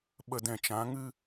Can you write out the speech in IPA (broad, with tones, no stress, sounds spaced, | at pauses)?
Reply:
ɓ ə˧ d ɛ̃˨ t͡ʃ ã˨˦ ŋ ɨ˦